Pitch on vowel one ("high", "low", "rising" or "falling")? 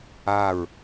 falling